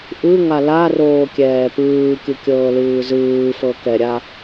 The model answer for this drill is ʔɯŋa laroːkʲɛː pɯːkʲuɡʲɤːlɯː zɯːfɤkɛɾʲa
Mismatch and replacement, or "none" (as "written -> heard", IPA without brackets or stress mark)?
ɡʲ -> kʲ